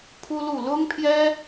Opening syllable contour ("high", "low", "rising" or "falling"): high